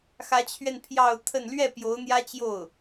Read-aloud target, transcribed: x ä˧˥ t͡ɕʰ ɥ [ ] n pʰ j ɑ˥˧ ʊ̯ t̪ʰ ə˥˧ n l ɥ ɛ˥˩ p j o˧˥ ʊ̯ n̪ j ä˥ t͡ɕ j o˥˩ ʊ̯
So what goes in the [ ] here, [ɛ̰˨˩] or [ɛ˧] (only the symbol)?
ɛ˧